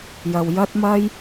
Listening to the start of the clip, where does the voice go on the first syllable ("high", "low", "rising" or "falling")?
low